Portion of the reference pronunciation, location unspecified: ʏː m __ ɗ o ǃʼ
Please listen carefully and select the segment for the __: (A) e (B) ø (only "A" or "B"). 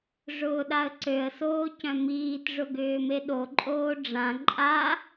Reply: A